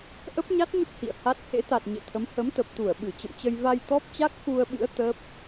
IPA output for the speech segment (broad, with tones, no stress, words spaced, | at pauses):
ʔə˦˥p̚ɲa˦˥t̚ɲə˦˥p̚ hḭ˧˨ə̯ha˦˥t̚ hḛ˧˥t̪a˨˩t̚ ɲḛ˧˨t̪ʰə˨˦m hə˨˦mt̪ə˨˩p̚t̪u˧˩ə̯ ɓɨ˧˩t͡ɕə̰˧˨mt͡ɕə˧j va˧j t̪ɔ˦˥p̚t͡ɕa˦˥k̚xu˧ə̯ɓɨ̰˧˥ə̯ t̪əː˦˥p̚